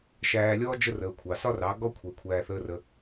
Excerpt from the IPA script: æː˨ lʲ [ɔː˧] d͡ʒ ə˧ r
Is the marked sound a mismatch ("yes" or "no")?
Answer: no